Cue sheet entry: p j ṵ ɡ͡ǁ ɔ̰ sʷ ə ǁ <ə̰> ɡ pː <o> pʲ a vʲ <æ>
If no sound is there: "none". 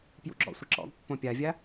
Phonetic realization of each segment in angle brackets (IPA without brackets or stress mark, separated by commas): ɔ̰, õ, a